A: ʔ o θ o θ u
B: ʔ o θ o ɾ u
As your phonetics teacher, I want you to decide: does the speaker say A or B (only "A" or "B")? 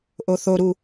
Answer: B